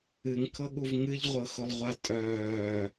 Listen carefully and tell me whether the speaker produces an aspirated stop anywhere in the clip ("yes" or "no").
yes